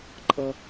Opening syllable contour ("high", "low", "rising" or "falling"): high